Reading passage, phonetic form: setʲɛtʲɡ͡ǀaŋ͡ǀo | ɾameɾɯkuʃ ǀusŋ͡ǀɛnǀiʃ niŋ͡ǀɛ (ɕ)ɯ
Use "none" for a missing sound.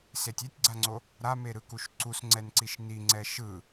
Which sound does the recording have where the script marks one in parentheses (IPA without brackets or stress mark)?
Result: ʃ